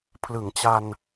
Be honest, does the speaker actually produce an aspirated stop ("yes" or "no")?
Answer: yes